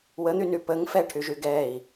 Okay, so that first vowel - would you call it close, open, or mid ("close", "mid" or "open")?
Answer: mid